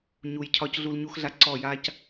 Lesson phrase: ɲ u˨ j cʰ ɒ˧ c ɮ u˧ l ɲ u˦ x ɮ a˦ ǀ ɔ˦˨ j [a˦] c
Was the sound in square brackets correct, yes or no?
yes